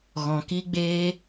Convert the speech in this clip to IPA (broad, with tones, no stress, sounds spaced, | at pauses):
ɣ ɔ̃˨ k i˧ ɡ͡b e˧